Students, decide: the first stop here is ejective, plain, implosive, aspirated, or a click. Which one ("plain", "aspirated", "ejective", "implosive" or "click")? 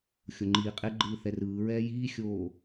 click